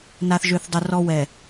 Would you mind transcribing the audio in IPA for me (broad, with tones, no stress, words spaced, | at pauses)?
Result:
na˨θ ʒø˨θdˤʊ˨ rɔ˨wɛ˨